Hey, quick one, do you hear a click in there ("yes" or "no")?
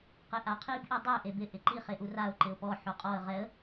yes